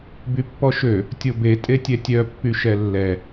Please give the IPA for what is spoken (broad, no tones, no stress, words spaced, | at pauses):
bypːɔʃø | tʲobe tʼetʲɛtʲœ pːyʃɛlːɛ